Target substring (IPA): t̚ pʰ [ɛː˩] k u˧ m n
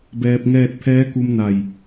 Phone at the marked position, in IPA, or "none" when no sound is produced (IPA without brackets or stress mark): ɛː˧˥